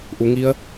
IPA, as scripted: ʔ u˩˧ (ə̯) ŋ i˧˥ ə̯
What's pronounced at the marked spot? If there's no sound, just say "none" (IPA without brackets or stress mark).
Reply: none